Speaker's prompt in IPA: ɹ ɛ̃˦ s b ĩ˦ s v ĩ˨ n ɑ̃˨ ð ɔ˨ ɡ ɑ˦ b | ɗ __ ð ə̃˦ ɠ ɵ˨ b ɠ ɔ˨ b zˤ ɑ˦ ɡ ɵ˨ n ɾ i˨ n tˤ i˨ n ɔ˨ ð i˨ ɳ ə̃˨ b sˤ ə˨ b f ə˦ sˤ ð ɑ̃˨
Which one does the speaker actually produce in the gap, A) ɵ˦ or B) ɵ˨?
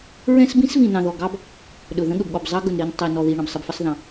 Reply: B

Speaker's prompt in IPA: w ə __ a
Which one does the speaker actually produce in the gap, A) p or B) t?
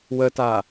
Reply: B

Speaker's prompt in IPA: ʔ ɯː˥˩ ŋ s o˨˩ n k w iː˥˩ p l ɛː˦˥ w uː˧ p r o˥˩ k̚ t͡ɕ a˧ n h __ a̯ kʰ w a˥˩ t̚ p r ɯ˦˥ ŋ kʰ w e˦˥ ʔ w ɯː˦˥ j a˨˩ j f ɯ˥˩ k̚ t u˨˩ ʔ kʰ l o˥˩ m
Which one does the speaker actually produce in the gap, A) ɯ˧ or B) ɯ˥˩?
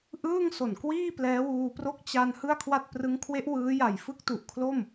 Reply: B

